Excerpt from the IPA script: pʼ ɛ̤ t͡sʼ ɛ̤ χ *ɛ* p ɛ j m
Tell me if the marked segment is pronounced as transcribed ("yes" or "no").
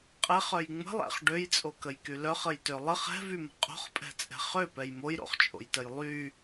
no